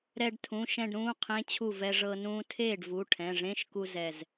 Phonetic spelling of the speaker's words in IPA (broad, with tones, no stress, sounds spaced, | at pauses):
ɾ ɛ˧ ɖ tʰ ũ˩˧˩ ʃ ɛ̃˥˧ ɖ ɾ ũː˧˥˧ qʰ ẽ˧˥˧ t͡ɕʰ u˥˩ v ɛ˧ ʐ ɤ˧ n ũː˧ tʰ eː˥˩ ɖ v u˩˧˩ ʈʰ ɛ̃˩˧˩ ʐ ẽ˧˥˧ ʃ k u˧ z ɛ˧˩ z